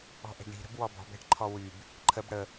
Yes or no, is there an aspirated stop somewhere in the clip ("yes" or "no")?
yes